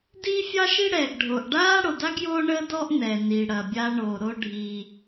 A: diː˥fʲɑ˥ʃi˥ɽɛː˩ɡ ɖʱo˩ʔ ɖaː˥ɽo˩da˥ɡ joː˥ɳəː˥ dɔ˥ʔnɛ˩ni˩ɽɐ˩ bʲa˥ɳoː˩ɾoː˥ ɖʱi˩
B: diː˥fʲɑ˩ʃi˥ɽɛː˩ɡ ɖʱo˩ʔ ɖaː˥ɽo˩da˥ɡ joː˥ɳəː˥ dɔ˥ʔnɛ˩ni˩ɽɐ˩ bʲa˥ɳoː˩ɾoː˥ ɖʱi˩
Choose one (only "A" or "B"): A